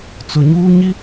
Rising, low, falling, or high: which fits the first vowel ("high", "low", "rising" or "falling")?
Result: low